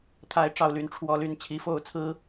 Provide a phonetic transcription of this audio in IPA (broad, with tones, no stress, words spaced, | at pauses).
t̪ʰa˨˦ɪ̯ʈ͡ʂɑ˨˩ʊ̯ly˨˦n ʈ͡ʂʰwɔ˨˦ly˨˩n t͡ɕʰi˨˦fo˥˨ʊ̯t͡sʰɹ̩˦